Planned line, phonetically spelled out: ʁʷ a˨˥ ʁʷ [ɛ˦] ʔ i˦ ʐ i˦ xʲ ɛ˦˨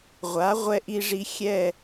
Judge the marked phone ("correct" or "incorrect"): incorrect